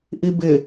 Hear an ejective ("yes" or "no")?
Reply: no